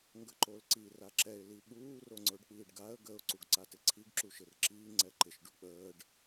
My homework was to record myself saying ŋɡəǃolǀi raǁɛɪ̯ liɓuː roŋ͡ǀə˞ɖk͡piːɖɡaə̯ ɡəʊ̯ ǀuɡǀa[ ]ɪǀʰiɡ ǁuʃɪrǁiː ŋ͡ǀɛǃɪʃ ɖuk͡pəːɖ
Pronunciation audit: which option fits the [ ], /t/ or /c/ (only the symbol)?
t